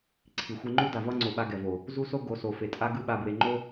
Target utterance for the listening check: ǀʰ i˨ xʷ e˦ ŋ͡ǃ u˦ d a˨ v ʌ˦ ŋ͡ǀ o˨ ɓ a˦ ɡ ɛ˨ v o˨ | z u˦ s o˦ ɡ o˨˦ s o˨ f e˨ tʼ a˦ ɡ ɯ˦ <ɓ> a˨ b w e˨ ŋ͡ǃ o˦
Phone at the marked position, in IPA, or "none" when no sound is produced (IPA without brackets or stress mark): ɓ